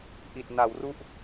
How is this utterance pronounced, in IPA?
ʔ i˨˩ t̚ n a˩˦ w r u˥˩ ʔ

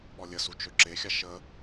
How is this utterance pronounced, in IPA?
ɓ ɔ lʲ ə s u t͡ʃ ø ǁ e xʲ a ʃ ə

